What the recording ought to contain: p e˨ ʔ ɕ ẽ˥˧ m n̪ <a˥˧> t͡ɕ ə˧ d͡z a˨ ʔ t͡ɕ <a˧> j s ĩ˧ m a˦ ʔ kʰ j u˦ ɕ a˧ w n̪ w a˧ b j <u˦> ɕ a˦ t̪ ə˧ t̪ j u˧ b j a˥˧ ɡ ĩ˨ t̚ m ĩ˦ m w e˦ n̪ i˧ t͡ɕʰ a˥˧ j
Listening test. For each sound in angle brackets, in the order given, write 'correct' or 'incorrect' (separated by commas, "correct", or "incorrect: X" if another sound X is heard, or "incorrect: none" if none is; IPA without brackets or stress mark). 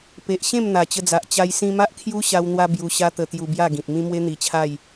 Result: incorrect: a˨˩, correct, incorrect: u˧